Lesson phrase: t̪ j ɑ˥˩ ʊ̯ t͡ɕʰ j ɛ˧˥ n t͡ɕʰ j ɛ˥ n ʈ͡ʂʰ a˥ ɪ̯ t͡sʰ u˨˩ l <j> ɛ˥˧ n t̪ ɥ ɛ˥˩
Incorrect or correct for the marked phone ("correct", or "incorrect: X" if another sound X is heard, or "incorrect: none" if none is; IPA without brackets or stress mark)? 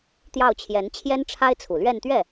incorrect: ɥ